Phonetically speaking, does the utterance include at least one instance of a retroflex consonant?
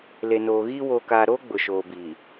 no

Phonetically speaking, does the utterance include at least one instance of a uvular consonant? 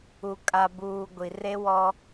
no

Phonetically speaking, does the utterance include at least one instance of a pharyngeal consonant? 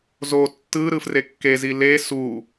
no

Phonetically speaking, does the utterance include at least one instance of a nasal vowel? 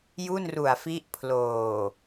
no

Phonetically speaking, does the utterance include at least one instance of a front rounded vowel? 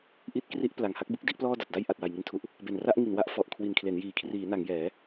no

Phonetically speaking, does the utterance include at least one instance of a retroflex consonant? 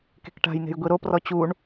yes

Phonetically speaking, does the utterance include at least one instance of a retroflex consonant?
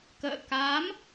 no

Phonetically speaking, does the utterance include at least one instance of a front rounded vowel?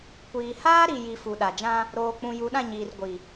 no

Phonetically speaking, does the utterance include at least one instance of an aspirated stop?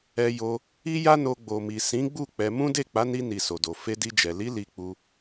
no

